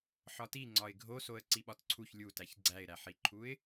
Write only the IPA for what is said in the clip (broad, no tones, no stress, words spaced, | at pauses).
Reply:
ħɒti ŋ͡ǀɒɪ̯ɡʱo soə̯ǀiɓɒtǀʰuç lʲutæç ɡ͡ǀæɪ̯ɾæħiǃʰuɪ̯